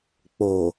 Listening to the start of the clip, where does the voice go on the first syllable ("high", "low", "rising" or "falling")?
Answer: low